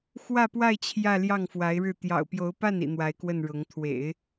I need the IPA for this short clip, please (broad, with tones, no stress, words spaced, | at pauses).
xwä˥˧pwa˥˧ɪ̯ t͡ɕʰjä˥˧ljɑ˥˩ŋ fwa˧˥ɪ̯ɻɻ̩˥˩ t̪jɑ̰˨˩ʊ̯pjo˧˥ʊ̯pa˥˩nḭ˨˩ n̪wa˧˥ɪ̯kwə˥˩nɻʊ˧˥ŋ t̪ʰwḛ˨˩˦ɪ̯